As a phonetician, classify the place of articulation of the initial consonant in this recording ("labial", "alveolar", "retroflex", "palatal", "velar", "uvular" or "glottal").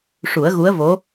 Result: retroflex